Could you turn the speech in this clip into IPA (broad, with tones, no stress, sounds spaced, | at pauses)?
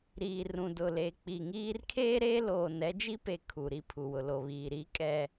ɾ iː˨ r ũ˨ d ʊ˨ l e˨ k͡p i˨ ŋ iː˦ r kʰ eː˦ ɾ eː˦ l oː˨ n ɛ˦ d͡ʒ i˦ p e˨ kʰ u˨ ɾ i˦ pʰ u˨ w ʊ˨ l o˨ β iː˨ ɾ i˦ kʼ ɛ˦